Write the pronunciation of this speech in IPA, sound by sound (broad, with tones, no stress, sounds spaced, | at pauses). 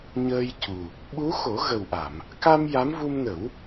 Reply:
ɲ əː˧ j c u˨˩ | ɓ u˧˥ x o˨˩˦ ɣ ə˨˩ w ʔ a˨˩˨ m | k a˧ m j a˧˥ m v u˧ m n ə˨˩˦ w